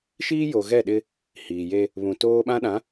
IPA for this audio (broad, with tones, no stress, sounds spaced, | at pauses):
ʃ iː˦ j o˨ ɣ ɛ˦˨ ɗ ɪ˦ | h iː˨ j e˦ | β ũ˨ t oː˦ ɓ ã˦ ɗ ã˨˦